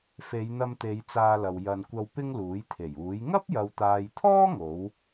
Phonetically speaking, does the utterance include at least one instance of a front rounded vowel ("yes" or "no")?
no